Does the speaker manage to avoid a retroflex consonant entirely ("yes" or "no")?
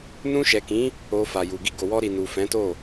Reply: yes